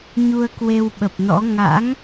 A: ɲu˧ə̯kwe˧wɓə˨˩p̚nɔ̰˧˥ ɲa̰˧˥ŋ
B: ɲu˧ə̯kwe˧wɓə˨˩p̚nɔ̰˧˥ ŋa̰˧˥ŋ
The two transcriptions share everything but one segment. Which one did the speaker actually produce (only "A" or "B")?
B